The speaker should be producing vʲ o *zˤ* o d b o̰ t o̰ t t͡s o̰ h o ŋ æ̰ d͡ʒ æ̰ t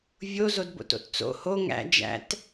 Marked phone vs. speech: incorrect: z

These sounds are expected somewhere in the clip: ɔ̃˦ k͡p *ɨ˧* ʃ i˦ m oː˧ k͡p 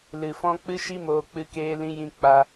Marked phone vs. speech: incorrect: ɨ˦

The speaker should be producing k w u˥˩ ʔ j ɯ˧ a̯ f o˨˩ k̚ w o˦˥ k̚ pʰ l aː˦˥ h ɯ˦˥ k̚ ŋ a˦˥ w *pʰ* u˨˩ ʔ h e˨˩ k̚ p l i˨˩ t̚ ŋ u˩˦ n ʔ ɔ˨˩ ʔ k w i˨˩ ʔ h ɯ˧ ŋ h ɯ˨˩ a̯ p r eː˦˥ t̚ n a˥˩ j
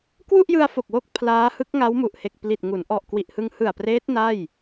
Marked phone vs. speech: incorrect: m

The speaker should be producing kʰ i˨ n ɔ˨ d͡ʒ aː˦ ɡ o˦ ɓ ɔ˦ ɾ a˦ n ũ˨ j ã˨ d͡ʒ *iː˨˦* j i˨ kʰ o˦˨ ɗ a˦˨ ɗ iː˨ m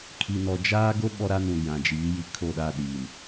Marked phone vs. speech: correct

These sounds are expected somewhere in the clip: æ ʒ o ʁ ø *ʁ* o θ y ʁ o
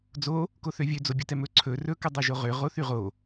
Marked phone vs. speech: correct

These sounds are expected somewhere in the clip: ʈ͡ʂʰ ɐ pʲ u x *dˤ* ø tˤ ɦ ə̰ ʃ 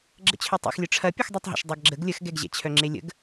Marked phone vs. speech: correct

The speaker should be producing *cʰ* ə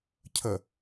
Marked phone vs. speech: correct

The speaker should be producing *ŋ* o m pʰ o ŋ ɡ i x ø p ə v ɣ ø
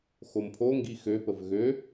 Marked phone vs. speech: incorrect: x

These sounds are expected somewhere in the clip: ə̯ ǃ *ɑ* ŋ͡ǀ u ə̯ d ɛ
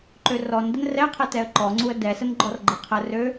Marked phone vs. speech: incorrect: ɔ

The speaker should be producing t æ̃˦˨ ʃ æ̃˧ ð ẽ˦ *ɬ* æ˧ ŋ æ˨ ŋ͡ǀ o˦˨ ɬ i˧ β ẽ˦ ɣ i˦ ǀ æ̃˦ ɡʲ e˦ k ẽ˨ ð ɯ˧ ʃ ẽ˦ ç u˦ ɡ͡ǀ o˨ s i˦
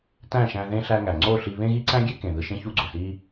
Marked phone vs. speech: correct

